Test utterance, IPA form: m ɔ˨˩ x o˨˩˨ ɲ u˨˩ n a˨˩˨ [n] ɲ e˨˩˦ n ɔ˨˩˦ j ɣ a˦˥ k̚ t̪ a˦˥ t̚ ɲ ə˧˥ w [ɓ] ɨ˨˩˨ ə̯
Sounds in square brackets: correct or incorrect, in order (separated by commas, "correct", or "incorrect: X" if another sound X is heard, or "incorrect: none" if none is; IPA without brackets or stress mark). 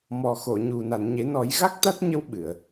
correct, correct